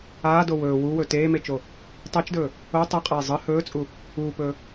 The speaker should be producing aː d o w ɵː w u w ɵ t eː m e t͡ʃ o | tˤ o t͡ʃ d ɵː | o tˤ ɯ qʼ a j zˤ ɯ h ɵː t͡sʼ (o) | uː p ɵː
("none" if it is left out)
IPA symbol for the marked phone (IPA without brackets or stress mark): u